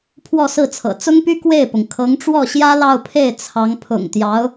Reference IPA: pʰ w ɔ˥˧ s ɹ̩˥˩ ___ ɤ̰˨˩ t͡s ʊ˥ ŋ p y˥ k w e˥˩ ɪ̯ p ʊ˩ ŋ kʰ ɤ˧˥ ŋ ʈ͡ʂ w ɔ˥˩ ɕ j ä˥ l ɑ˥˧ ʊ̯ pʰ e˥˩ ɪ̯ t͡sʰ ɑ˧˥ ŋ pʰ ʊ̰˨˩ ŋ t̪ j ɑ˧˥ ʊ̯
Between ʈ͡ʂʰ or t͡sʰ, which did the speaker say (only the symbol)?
t͡sʰ